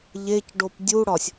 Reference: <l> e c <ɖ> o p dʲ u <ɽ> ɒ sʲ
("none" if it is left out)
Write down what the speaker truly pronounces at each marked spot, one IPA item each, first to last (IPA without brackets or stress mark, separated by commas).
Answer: ʎ, ɖ, ɽ